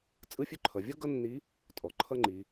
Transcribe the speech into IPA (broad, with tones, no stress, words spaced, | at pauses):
t͡sʼɯ˧˥fʲø˧ǃʰʌ˩vʲʌ˥ ɡʌ˥nːi˧˥ | tʼɔ˩ǃʰʌ˥ŋ͡ǃi˩˧